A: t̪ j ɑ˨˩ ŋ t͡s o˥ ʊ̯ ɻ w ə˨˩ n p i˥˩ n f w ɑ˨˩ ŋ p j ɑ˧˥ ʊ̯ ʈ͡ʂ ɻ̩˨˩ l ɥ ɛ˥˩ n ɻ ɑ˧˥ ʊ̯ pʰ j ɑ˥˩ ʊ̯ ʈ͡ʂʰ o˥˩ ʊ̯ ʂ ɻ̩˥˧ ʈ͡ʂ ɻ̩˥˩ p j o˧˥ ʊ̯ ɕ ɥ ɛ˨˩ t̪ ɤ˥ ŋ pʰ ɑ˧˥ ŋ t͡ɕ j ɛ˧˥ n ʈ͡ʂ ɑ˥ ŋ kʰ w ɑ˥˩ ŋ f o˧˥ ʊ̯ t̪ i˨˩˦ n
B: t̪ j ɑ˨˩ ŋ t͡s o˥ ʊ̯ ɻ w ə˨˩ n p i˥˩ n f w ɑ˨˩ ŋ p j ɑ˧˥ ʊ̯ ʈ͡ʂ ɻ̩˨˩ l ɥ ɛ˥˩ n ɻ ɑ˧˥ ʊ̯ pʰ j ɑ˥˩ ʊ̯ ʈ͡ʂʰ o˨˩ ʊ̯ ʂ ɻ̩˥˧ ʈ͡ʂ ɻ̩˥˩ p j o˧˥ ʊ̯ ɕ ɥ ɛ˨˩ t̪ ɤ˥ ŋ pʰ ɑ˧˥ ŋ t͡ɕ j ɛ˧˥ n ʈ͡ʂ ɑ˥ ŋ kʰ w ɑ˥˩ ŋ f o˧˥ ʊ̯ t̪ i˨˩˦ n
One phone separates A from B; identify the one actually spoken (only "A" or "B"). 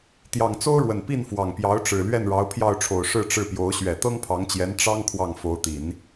B